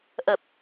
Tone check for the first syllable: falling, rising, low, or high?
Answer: low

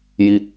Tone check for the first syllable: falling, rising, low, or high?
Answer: falling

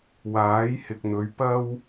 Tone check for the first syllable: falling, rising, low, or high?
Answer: rising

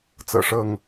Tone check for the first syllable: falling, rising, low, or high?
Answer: low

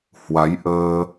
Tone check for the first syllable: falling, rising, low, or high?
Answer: rising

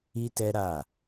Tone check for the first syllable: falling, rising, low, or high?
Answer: high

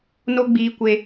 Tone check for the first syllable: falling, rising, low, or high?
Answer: high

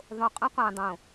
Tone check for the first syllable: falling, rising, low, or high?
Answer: low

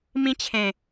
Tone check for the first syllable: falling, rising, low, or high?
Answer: high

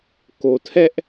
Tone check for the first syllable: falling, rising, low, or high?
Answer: low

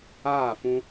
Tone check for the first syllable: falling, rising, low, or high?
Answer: falling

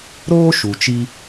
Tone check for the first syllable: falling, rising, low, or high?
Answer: high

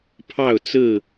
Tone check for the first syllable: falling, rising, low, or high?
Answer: falling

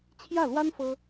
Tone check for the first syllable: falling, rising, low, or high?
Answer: falling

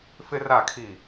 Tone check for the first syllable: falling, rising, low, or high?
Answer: high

